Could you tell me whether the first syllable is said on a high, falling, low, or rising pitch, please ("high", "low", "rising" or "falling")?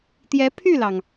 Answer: rising